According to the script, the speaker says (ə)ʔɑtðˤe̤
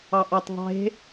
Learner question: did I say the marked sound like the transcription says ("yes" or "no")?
no